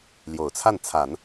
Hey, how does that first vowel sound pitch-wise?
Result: low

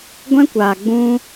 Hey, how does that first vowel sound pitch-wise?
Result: high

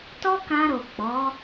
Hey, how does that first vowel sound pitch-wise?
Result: high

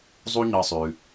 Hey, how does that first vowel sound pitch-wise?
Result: high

